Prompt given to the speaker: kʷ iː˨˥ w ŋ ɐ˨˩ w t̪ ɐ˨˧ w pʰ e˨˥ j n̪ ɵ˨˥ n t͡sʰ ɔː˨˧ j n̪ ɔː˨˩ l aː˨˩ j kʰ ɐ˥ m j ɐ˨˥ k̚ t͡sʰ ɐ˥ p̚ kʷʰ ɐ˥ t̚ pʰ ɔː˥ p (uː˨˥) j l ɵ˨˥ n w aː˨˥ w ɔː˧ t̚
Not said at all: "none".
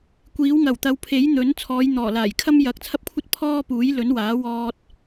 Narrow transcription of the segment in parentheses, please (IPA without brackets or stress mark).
uː˨˥